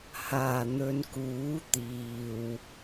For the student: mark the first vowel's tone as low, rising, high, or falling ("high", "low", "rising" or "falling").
low